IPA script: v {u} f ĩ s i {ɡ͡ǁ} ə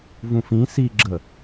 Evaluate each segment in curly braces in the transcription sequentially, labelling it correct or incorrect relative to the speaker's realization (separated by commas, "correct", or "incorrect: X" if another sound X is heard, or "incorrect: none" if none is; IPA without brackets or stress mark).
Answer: incorrect: ũ, correct